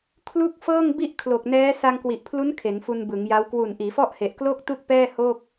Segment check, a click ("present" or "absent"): absent